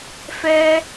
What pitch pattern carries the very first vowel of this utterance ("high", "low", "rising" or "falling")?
high